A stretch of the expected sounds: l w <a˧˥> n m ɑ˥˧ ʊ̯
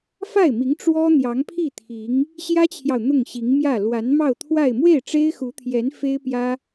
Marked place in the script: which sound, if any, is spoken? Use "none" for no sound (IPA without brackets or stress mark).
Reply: a˧˥